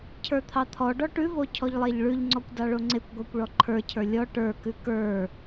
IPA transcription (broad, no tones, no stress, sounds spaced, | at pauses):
cʰ ə˞ t̪ʰ ɑ t̪ʰ ɔ ɖ ɔ ʈ ʉ v o cʰ ɔ ʎ lˠ e ʎ ɭ ʉ ʎ ŋ͡ǀ ɔ kʷ d ɑ ɭ o ŋ͡ǀ e kʷ ɡʷ ɑ kʷ ɭ ɔ ǃʰ ə˞ cʰ ə˞ lʲ ɔ ʈ ə˞ k ʉ k ə˞